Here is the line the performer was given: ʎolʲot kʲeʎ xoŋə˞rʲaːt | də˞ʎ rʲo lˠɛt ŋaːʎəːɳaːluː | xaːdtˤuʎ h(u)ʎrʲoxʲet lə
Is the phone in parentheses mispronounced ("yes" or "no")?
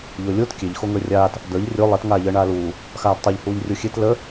yes